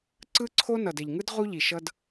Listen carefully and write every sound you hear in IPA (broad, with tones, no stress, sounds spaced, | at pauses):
ǀ ɯ˦ ǀʰ o˦ n ʌ˨ d ɛ˨ ʎ ŋ ɯ˦ d ʁ u˦ ʎ i˨ ʃ ʌ˦ d